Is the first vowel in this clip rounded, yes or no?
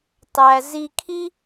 no